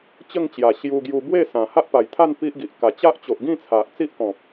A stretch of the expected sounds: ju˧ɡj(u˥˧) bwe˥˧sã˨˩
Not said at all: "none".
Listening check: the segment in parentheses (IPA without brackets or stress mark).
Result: u˧